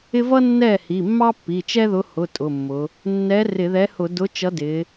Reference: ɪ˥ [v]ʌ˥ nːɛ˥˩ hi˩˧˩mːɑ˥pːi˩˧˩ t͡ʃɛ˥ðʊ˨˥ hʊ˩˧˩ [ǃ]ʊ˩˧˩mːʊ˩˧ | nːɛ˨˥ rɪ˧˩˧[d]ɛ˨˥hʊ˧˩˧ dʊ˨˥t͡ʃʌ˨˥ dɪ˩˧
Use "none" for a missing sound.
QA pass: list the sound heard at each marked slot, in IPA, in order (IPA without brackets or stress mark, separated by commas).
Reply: v, tʼ, ð